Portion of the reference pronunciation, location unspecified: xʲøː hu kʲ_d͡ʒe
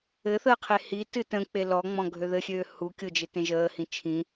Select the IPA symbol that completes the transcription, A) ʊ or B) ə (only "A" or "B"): A